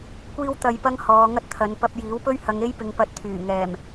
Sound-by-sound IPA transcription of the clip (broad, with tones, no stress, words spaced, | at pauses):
kʷiː˧wt̪ɐ˨jpɐ˧ŋ hɔː˨˧ŋɐ˥t̚t̪ʰɐ˨˧n pɐ˧p̚ jiː˨˥wpɵ˥ɥhɐ˨˧ŋ e˥jpɪ˨ŋpɐ˧t̚ t̪ʰyː˨˩ ŋɛː˨˩m